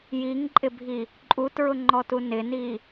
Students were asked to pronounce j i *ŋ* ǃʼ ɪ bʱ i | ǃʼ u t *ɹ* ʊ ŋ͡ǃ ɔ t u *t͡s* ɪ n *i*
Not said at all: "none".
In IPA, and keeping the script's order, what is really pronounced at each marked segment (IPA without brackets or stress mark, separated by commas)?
ŋ, ɹ, n, i